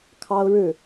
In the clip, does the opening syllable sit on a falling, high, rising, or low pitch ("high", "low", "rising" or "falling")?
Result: high